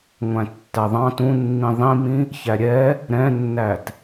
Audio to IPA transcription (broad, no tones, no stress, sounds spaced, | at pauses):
ŋʷ æ̃ tː æ ðˤ ɑ̃ t ũ nː ĩ ðˤ ĩ m ĩ | ç æ ɾʲ ɛ | ɾ ɛ̃ nː æ t